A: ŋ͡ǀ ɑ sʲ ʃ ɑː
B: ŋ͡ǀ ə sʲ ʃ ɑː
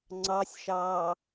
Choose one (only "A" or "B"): A